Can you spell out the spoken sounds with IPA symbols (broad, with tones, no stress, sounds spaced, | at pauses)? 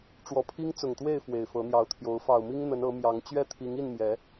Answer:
ʈ͡ʂ w ɔ˨˩ pʰ i˦ ŋ t͡s ʊ˨˩ ŋ t̪ w e˥˨ ɪ̯ f w e˨˩ ɪ̯ f ɤ˨˦ n̪ j ɑ˨˦ ʊ̯ t̪ʰ j o˨˦ ʊ̯ f ɑ˨˩ ʊ̯ m i˦ ŋ n̪ ə˨˦ n ɤ˨˦ m j ɑ˨˦ ŋ t͡ɕ ɥ ɛ˥˨ t̪ʰ i˨˦ ŋ i˥˨ n m j ɛ˨˦